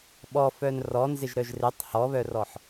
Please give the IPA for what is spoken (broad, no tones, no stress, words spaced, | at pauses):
ɓɔ fœnrɔ nzɪʒɾœʒrɪtˤ hɔβœrɔħ